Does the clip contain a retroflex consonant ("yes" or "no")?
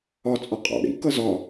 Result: yes